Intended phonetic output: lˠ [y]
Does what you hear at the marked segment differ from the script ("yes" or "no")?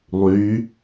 no